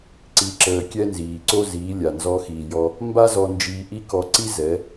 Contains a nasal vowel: no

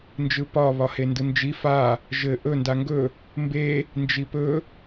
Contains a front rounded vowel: no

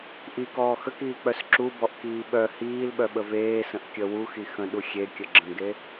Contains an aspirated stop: no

